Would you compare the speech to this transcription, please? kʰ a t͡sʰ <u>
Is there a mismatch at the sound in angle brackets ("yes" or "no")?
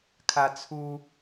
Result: no